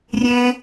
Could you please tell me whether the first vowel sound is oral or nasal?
nasal